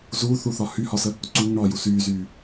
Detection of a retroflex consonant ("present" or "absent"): present